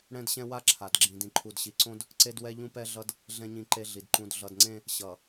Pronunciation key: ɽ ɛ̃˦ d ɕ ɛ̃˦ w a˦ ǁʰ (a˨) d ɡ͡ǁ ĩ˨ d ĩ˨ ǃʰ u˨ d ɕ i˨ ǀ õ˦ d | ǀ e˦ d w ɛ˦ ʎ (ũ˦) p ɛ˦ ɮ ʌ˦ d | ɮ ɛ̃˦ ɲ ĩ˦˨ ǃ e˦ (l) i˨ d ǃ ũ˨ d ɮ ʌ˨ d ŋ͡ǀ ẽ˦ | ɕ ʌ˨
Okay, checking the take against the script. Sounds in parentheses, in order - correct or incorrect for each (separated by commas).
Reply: correct, correct, incorrect